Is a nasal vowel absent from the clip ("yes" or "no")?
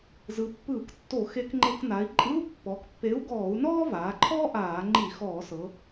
yes